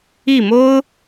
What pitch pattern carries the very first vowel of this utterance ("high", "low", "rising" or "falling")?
falling